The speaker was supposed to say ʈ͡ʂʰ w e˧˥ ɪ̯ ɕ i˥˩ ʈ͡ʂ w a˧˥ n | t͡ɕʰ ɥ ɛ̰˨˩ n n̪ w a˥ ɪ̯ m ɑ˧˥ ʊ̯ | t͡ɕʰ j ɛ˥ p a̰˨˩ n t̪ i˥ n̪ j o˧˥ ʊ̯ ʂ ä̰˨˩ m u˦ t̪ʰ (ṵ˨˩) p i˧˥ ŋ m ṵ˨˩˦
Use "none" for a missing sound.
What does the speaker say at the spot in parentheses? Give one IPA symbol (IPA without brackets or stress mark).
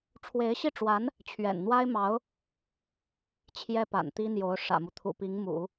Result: ṵ˨˩